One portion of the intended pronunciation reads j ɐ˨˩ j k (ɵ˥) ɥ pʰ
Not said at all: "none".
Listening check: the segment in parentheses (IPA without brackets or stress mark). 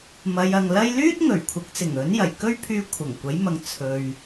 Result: ɵ˥